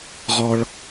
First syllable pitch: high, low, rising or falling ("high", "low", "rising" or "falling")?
low